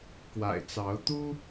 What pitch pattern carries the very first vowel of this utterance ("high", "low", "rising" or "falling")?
low